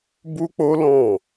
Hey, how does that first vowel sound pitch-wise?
high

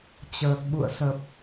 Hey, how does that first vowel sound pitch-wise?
low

